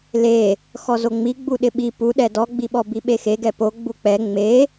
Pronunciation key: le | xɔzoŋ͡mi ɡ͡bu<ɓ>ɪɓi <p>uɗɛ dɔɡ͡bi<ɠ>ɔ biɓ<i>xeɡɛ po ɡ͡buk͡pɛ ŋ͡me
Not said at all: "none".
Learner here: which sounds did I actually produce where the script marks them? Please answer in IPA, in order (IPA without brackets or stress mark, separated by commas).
ɗ, p, ɓ, e